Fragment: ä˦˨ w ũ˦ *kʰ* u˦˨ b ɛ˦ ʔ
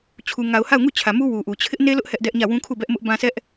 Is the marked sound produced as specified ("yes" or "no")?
yes